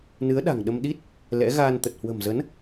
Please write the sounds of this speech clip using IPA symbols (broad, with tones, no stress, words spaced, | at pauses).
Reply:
nɨ˨˦ə̯ ɗa̤˨˩ŋɗə˧m ɗi˦˥t̚ | lɛ̰˧˥ ɣaː˧nt̪ə˨˩t̚ hwə̤˨˩mzə˨˦n